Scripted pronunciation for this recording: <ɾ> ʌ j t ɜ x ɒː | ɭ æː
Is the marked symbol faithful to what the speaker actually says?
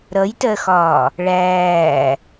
yes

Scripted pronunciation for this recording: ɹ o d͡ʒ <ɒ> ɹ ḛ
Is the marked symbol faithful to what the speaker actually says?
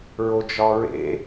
yes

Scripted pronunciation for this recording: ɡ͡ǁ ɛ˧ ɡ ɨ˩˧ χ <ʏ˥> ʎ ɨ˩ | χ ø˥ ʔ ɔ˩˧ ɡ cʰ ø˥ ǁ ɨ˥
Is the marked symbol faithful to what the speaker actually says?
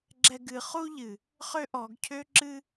no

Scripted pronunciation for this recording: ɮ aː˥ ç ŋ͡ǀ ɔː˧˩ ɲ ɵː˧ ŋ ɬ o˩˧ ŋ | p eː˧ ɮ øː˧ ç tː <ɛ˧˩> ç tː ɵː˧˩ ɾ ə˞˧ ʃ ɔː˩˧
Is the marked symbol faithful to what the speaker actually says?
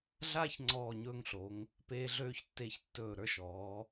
no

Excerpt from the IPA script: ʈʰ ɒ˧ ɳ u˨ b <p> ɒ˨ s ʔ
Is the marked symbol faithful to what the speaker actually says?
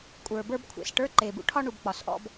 no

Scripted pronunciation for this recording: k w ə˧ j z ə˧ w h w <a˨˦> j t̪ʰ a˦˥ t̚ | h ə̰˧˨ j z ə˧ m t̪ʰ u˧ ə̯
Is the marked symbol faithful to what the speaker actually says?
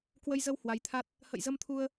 yes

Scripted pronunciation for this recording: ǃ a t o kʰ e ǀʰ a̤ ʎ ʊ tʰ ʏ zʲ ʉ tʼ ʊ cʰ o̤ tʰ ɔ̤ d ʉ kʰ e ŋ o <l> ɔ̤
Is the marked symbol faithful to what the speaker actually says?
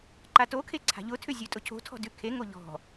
no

